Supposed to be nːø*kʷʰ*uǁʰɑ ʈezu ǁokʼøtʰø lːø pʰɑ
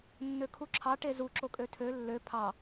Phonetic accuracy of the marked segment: incorrect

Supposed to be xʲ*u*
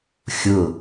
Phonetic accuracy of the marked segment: incorrect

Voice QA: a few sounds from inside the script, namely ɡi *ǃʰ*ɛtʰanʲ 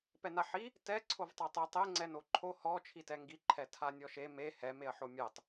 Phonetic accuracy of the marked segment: correct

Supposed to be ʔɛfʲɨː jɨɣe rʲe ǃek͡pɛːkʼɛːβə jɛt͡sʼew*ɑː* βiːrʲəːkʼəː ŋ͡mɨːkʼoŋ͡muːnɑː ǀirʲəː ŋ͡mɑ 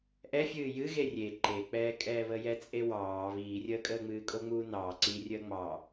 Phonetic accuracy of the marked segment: correct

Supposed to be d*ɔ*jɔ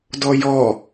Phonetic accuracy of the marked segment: correct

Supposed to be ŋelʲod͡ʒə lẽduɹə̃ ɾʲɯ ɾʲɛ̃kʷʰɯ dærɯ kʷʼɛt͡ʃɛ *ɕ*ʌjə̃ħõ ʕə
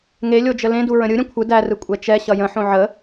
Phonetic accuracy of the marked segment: correct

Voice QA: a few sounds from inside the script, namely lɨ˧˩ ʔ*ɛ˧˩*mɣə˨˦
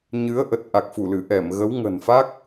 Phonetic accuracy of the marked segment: correct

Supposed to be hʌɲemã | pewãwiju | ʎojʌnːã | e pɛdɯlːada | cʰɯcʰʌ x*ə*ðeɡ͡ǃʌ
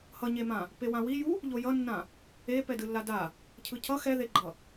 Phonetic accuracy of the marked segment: incorrect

